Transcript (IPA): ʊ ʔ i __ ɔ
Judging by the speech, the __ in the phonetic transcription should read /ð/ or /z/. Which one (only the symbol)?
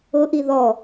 ð